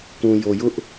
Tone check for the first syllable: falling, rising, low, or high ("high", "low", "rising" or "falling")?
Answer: low